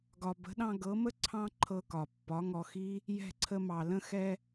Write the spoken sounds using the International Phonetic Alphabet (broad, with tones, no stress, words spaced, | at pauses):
ɡɒ˨bə̤˨˦ɗɑ̃˧ ɡɤ˨˦mə˦ ǀʰɑ̃˦ǃʰɤ˧kɒ˨ pːɒ˨˦ŋɔ˧xi˦ | jɛ̤˦˨ǀʰə˧mɑ˨ lə̃˧xɛ˧